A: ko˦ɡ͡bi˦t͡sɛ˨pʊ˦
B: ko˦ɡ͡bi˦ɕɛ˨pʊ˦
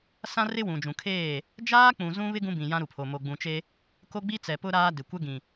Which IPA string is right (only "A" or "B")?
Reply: A